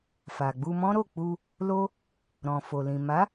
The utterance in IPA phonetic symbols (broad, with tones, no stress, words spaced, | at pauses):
fa˨ɡ͡bu˧mɔ̃˦ɾo˦˨ k͡pu˧ | lo˦ | ɾɔ̃˨ fo˨lĩ˨ ma˨˦